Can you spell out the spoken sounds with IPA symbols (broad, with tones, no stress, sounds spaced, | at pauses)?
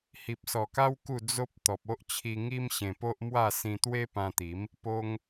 h i˨ p̚ s ɔ˨˩ k a˦ w k u˥˧ d͡z o˦ p̚ t̪ ɔ˨ p̚ o˦ ʔ t͡ɕʰ i˧ ŋ i˦ m ɕ ẽ˧ p o˦ ʔ m w a˥˧ s ĩ˧ t̪ w e˦ p ã˧ t̪ i˨˦ m | p o˧ ŋ